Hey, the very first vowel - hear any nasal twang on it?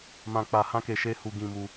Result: yes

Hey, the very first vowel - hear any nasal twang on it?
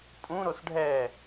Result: yes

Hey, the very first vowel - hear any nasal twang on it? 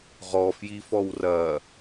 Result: no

